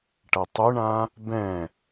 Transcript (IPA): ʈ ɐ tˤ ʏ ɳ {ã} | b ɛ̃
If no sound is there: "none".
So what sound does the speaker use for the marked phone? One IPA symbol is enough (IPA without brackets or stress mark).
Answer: ã